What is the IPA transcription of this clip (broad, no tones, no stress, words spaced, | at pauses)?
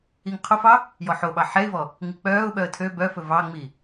iŋqʰofɑ | jɔħoɓɑ ħɛɪ̯vɔ | ŋik͡pœːʊ̯ɓœə̯ tʰø bœfɵ vɑŋ͡mi